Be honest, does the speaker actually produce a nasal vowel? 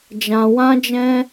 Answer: yes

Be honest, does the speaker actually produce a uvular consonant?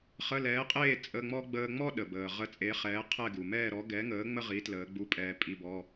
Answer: yes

